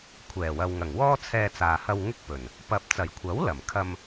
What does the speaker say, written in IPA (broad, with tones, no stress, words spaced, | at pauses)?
kʷʰɛː˨˩wɐ˨wŋɐ˨˩ŋ wɔː˥t͡sʰɛː˧t͡saː˨hɐ˧w ŋɪ˥k̚pɵ˨˩n | pɐ˨p̚t͡sɐ˨˩j kʷʰɐ˨˥w lɐ˨˩m kʰɐ˧m